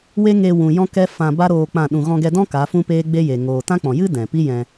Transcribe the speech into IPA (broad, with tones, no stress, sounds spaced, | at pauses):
w e˦ ŋ e˧ w ũ˨ j ɔ̃˦ k ɛ˦ f ã˧ b a˦ ɾ oː˧ k͡p ã˦˨ ɗ ũ˨ ɣ ɔ̃˧ ɡ ɛ˧ d ɔ̃˦ k a˨˦ f ũ˦ p eː˦ ɡ͡b e˦ j e˨ ŋ oː˨ t ã˦ k͡p ɔ̃˨ j ɨ˦ d ɛ̃˨ p i˦ j ɛ̃˧